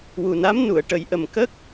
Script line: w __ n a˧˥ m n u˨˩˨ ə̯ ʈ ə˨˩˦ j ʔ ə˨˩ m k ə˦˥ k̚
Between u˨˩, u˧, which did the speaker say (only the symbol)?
u˨˩